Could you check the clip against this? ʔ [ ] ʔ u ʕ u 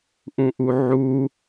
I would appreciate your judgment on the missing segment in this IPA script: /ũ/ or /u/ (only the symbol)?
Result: ũ